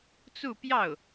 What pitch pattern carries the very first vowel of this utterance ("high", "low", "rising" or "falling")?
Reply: falling